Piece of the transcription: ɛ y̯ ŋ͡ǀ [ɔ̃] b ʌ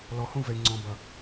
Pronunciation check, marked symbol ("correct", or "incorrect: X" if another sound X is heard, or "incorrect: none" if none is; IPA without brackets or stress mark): correct